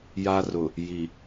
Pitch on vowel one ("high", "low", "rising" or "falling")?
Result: high